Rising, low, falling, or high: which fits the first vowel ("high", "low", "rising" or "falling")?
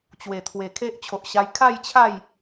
low